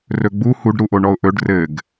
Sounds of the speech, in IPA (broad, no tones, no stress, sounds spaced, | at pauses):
r ɵ ɡ͡b u h u ɖ ɾ u ʔ o ɳ ɔ ʊ̯ ʔ ɵ ɖ r ɘ ɡ